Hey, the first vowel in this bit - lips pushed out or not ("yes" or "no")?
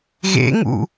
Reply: no